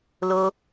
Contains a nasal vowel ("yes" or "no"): no